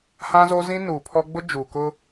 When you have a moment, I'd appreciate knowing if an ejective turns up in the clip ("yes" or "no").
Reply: no